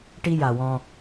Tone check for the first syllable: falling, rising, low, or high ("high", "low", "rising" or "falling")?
high